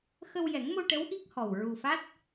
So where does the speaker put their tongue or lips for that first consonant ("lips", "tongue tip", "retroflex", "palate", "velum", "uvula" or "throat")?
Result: velum